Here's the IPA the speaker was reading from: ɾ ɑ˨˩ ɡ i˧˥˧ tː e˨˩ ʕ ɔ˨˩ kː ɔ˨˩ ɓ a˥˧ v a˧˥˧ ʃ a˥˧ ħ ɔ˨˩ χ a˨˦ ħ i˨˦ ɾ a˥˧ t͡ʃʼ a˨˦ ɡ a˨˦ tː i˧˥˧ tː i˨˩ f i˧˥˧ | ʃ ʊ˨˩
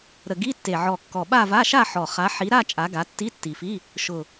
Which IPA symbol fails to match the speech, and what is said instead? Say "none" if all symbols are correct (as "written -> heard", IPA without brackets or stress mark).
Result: ɑ˨˩ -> ə˨˩